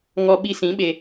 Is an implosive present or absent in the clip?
present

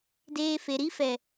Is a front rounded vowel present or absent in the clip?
absent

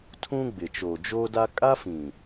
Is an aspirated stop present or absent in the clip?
present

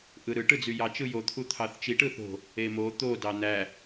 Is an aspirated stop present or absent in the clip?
present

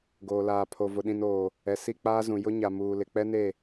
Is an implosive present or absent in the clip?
present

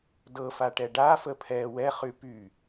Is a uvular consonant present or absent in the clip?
present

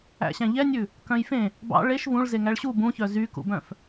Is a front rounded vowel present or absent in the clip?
present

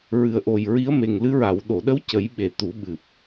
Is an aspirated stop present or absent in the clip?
absent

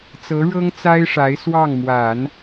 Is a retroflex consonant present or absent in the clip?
present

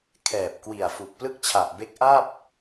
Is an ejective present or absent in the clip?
absent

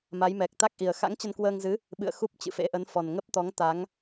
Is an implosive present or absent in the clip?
present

